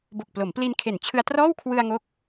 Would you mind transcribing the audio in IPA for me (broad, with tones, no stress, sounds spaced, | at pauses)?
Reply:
b o˨˩ k̚ p l o˩˦ m p l i˧ n kʰ e˨˩ n t͡ɕʰ ɯ˧ a̯ t r ɔː˥˩ w kʰ w ɯ˧ a̯ ŋ o˦˥ k̚